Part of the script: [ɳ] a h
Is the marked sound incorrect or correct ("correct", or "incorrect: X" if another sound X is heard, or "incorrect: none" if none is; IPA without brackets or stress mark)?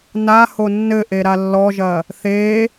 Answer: incorrect: n